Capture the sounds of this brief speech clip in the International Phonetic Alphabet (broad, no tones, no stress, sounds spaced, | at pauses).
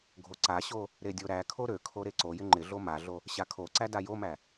ɡʱ o ǀ a ɕ o | ɾ e dʲ o ɾ æ kʰ o ɾ ø kʰ o ɾ e ǀ o j ɪ ŋ͡ǃ ɪ ɮ o m a ɮ o | ɕ a kʰ o ǀ æ d a j o m æ